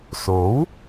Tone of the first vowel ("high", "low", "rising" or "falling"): rising